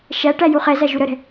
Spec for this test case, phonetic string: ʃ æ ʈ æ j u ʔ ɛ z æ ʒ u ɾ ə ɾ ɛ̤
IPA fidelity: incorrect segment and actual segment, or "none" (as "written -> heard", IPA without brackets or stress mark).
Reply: ʔ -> χ